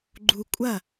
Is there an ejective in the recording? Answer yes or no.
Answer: yes